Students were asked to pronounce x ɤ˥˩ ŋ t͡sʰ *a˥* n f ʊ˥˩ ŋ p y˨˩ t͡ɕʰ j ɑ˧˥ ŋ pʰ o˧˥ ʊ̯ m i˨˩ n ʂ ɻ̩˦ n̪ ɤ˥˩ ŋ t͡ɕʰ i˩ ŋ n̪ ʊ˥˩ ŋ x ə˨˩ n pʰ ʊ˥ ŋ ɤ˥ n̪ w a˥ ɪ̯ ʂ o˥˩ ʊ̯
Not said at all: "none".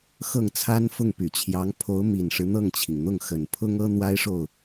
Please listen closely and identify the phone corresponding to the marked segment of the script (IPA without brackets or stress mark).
a˥